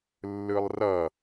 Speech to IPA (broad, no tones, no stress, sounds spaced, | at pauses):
lː ɯ lˠ r ʌ